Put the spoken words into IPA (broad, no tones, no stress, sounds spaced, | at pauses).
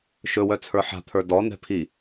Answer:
ʃ ɵ w œ t͡sʰ ə˞ ħ a̤ t̪ʰ ə˞ d ɔ n̪ ɛ̤ pʰ i